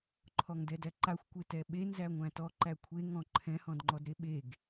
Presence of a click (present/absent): present